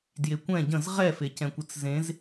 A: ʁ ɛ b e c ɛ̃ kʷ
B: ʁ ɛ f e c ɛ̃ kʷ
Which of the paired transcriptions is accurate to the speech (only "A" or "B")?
B